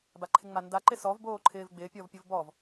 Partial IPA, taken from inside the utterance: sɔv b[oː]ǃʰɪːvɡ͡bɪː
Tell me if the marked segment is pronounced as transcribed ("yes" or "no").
yes